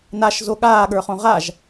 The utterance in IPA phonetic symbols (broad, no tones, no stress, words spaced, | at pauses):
naʃzo ɠaːɠə˞χõ ʁaʒ